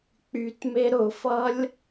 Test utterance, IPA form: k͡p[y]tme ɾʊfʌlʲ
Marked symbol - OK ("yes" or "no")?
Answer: yes